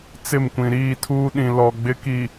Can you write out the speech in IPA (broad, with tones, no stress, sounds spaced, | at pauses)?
t͡s ɪ˦˨ m kʷ ĩ˨ ɾ iː˦˨ tʰ uː˦ ɗ ĩ˨ l ɔ˨ ɡ͡b ɪ˦ k i˨